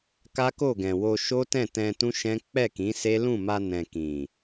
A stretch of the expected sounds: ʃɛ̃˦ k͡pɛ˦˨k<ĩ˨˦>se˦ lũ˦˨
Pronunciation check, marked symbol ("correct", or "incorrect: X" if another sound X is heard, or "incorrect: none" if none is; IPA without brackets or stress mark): correct